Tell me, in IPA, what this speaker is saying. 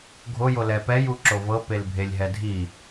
ɡʱ o j o l ɛ p ɛ j u ǁ o v ɤ p e l bʱ e lʲ ɦ ɛ dʱ i

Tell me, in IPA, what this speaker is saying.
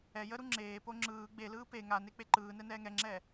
ɛ j ə ɾ u ŋ͡ǁ eː p o ŋ͡ǁ ɯː ɡ͡b e l ɯː p e ŋ a n e k͡p e ǃ ɯː n ɛ n ɛː ŋ ɛ ŋ͡ǁ ɛː

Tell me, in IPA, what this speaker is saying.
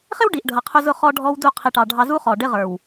χ ɪ˦ w ɖ i˨ ʔ ɖʱ ʌ˨ qʰ ʊ˦ z ʊ˦ χ ɔ˦ ɖʱ ɔ˦ w d u˦˨ qʰ i˨ ʈ ɑ˨ ɖʱ ɑ˨ z u˦ χ ɔ˨ ɖ ɪ˦ ʁ ə˞˨ w

